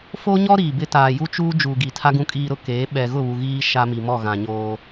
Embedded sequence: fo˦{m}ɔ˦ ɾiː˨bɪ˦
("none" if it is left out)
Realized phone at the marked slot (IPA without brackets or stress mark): ɲ